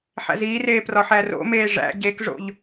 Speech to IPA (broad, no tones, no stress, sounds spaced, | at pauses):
ħ æ̰ z iː r eː p r ɒ ħ æ r o̰ m eː ʐ æ̰ ɟ e k ʐ o̰ ʎ